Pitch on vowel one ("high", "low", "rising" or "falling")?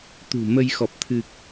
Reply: low